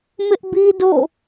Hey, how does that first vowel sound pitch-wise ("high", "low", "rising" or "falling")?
high